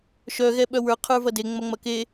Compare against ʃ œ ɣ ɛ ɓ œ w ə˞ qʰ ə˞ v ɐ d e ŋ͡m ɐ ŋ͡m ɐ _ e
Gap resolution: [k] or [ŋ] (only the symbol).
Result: k